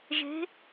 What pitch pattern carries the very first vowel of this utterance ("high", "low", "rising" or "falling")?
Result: rising